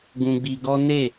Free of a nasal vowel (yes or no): no